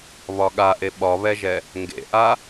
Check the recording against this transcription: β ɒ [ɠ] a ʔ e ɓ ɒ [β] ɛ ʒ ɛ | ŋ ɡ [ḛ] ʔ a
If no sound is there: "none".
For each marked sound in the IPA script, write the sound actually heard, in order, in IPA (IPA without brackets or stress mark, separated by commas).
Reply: ɠ, β, ḛ